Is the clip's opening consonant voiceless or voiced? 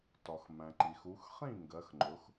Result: voiceless